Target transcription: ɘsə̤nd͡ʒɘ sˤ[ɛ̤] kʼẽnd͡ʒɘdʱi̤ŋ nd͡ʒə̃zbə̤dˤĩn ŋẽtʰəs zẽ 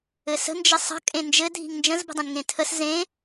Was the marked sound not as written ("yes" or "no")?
yes